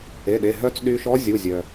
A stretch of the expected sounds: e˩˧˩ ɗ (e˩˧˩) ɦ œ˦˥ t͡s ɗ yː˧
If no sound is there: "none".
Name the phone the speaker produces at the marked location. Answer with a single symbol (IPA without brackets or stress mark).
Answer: e˩˧˩